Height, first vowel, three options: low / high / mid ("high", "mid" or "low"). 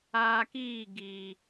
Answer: low